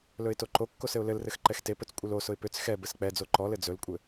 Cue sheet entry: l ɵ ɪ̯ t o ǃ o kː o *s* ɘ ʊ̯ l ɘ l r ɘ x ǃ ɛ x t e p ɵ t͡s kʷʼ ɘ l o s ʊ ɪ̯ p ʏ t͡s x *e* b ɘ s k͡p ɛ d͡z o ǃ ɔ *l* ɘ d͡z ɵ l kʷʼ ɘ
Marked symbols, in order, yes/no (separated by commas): yes, no, yes